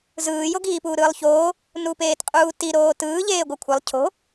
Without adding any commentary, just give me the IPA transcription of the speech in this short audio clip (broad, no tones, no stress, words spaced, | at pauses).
zɯːjoɡiː puːɾɯːlˠçoː | nupeːtqʼuːti ɾoːtɯː ʎeːɡʷɯkʷʰɛlˠ cʰo̤